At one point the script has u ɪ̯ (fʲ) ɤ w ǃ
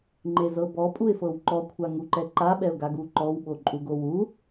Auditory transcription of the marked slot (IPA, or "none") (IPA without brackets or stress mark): f